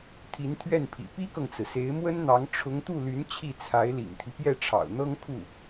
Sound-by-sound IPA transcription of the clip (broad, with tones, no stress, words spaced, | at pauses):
t̪ʰi˧˥nt̪ʰɥɛ˥˩npʰḭ˨˩ pi˥kɤ˨ŋt͡sɹ̩˩se˧˥ɪ̯ mwə˥nn̪ɑ˧˥ŋ ʈ͡ʂʰʊ˧˥ŋt̪u˥˩ly˧˥n t͡ɕʰi˥˩t͡sʰa˧˥ɪ̯lḭ˨˩ŋt̪ʰi˦ pjɛ˥˩ʈ͡ʂʰɑ̰˨˩ʊ̯n̪ɤ˥ŋkʰu˥˩